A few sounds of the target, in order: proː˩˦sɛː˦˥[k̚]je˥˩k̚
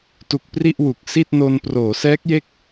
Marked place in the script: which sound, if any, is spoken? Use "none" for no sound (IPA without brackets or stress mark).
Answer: k̚